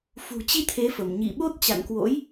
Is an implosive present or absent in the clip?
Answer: present